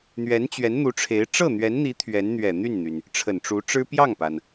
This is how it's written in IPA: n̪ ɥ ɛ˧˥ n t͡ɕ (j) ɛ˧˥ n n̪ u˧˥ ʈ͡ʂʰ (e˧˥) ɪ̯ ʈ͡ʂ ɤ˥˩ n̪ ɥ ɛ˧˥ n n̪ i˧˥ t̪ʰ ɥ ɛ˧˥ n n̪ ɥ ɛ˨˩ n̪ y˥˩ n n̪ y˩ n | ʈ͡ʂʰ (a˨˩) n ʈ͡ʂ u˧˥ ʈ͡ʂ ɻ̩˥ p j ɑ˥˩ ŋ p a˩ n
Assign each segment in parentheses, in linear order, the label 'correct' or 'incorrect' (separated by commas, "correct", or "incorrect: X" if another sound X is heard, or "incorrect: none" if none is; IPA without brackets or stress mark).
incorrect: ɥ, correct, incorrect: ə˨˩